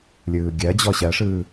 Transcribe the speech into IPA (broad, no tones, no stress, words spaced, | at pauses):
lʲɯːɡʲɜd͡ʑɔ ɕɜʂɯː